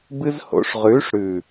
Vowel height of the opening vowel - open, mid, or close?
close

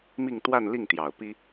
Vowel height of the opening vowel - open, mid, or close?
close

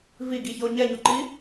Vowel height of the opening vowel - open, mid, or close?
close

